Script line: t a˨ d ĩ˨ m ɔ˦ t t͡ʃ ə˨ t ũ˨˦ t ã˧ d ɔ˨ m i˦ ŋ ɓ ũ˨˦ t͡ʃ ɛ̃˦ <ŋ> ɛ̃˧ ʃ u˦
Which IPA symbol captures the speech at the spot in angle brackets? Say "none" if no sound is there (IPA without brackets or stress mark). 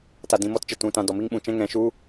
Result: ŋ